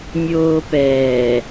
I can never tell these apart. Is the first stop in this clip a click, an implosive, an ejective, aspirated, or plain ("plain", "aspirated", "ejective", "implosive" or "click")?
plain